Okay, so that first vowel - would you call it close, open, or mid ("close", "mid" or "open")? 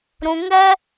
close